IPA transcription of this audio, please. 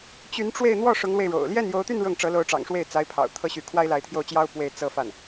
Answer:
t͡ɕ y˧˥ n ʈ͡ʂ w e˥˧ ɪ̯ n̪ w ɔ˥˩ ʂ ʊ˧˥ ŋ l w e˧ ɪ̯ ɻ o̰˨˩ ʊ̯ l j ɛ˥˩ n j o˧˥ ʊ̯ t̪ y˥˧ n ɻ ʊ˥˩ ŋ ʈ͡ʂ ɤ˧˥ l o˧˥ ʊ̯ ʈ͡ʂ ɑ̰˨˩ ŋ ʂ w e˥˩ ɪ̯ t͡s a˧˥ ɪ̯ pʰ ɑ̰˨˩ ʊ̯ t̪ʰ ɤ˥˩ ɕ y˧˥ kʰ w a˥ ɪ̯ l a˧˥ ɪ̯ t̪ʰ j o˥˩ ʊ̯ t͡ɕ j ɑ˥ ʊ̯ p w e˧˥ ɪ̯ t͡s ɤ˥˧ f a˥˩ n

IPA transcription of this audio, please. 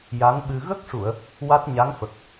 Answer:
j a˧˥ ŋ ɓ ɨ˧ ɣ ə˦˥ k̚ ʂ u˨˩˨ ə̯ | w a˦˥ t̚ ɲ a˧˥ ŋ f ə˨˩ k̚

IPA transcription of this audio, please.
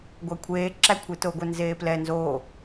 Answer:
ɡʷ æ kʷʰ eː ǁ æ kʷʰ e t o ɡʷ ɛ n z eː p l ɛ n z o

